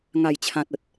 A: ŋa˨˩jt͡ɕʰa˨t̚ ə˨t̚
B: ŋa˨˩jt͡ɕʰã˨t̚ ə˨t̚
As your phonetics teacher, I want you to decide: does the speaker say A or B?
B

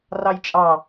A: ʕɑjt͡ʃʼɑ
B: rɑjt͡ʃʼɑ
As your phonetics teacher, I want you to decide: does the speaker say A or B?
B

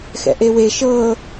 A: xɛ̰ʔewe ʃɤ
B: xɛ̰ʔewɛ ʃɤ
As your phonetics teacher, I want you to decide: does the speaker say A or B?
A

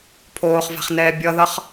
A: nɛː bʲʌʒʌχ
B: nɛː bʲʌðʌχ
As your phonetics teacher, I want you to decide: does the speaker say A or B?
B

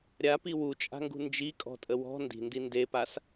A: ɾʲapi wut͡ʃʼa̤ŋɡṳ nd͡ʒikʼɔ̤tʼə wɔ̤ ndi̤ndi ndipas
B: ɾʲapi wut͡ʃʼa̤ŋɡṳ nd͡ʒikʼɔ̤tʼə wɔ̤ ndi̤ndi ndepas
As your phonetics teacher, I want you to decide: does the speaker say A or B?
B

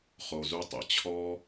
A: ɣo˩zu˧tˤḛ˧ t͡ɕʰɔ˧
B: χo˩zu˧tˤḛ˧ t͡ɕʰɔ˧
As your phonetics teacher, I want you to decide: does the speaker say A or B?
B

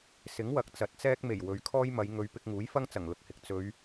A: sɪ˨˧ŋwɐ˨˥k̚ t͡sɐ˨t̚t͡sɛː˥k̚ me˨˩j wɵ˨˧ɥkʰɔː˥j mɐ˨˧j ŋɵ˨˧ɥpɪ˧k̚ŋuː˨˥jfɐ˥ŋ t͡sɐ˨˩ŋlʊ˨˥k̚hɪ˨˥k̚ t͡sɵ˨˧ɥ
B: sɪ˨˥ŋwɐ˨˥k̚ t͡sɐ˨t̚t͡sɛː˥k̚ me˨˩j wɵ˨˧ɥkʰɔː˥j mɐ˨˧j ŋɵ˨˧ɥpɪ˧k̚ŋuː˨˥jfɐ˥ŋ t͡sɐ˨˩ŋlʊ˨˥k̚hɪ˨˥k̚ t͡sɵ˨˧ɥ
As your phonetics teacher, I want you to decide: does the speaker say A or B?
B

